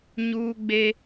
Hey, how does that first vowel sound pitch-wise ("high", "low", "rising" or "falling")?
high